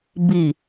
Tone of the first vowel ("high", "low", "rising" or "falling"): low